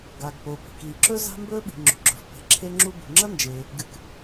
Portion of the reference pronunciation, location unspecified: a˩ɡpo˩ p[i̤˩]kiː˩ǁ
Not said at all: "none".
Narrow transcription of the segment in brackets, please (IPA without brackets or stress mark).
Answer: i̤˩